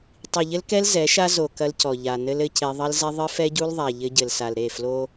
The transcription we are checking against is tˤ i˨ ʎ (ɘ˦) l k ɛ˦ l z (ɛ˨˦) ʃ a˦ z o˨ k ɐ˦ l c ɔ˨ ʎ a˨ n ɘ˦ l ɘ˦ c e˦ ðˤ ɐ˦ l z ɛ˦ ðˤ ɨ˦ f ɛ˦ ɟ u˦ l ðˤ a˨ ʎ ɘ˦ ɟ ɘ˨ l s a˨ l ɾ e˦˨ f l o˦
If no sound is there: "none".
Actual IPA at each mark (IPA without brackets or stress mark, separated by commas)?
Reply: ɘ˦, ɛ˨˦